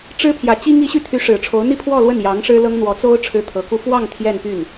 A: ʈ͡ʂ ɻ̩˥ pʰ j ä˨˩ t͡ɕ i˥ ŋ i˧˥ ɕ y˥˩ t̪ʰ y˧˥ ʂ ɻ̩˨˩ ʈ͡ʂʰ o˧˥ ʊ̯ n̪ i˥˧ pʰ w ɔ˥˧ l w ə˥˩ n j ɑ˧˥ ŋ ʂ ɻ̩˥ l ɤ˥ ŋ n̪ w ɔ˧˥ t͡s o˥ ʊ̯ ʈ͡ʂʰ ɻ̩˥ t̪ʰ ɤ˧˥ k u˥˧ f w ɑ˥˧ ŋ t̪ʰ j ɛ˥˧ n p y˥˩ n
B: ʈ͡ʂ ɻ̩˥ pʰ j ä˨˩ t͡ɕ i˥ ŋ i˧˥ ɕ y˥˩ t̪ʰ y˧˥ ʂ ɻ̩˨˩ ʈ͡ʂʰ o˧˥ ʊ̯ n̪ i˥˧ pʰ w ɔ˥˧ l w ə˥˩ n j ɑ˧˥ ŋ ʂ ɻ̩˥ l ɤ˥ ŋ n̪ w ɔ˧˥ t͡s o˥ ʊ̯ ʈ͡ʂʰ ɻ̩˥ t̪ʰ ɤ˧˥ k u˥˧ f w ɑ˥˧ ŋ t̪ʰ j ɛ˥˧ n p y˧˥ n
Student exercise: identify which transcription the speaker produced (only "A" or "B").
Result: A